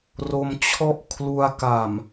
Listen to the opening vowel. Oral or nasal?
oral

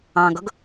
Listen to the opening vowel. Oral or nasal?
nasal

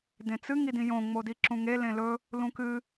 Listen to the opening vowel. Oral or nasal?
nasal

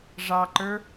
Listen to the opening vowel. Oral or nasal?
oral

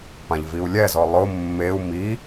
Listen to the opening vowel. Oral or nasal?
nasal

